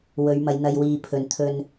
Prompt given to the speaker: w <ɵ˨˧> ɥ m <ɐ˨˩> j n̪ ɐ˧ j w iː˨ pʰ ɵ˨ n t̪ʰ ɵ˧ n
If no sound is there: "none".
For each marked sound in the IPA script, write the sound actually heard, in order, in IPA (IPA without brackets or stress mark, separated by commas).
ɵ˨˧, ɐ˨˧